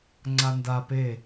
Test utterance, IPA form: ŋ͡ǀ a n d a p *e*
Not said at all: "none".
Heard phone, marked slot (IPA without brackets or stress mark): e